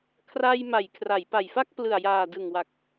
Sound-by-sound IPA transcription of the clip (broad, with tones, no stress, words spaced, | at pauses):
kʰra˧j ma˩˦jkʰra˩˦jpa˨˩jfa˥˩k̚ plɯ˨˩a̯jaː˨˩dɯ˨˩ŋwa˨˩k̚